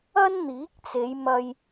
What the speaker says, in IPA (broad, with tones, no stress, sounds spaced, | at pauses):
ɐ˥ n n̪ iː˨˥ k̚ t͡s e˨˧ j m ɐ˧ j